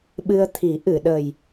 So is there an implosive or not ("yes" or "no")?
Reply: yes